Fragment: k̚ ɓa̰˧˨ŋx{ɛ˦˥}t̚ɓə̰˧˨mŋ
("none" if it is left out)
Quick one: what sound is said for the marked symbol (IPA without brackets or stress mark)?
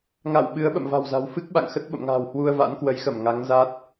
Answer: ə˦˥